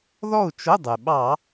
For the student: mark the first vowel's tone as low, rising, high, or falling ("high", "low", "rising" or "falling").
falling